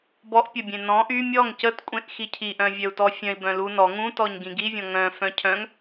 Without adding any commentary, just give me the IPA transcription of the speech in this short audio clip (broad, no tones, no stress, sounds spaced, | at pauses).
b ɔ ʔ pʲ ə bʲ ẽ n ɔ̃ ʔ y mʲ ɔ ŋ c ə t kʷʼ ẽ ʔ x i cʰ i ʔ œ̃ vʲ œ u̯ t ɔ fʲ œ̃ i̯ b œ̃ l u n ɔ ŋ ũ t ɔ ɲ ɡ ĩ ɡ i vʲ ɔ̃ ŋ œ̃ f œ̃ cʰ œ̃ ŋ